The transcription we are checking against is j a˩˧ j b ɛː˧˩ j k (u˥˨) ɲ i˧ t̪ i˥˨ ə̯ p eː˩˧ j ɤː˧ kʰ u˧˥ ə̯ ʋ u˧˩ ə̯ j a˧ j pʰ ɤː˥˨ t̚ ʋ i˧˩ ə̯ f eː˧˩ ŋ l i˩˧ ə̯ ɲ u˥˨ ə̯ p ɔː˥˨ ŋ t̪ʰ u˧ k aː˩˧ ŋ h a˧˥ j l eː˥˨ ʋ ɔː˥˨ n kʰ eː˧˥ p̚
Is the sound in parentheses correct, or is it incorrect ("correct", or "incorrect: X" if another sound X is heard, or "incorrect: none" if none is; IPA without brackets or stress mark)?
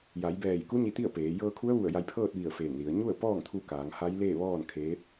incorrect: u˧˥